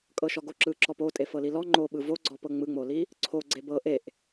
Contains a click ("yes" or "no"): yes